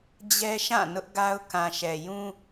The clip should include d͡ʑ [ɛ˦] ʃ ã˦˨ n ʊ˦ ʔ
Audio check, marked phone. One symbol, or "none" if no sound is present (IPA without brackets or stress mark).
ɛ˦